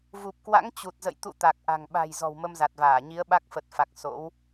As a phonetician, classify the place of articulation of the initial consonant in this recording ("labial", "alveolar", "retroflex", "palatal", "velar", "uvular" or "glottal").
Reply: labial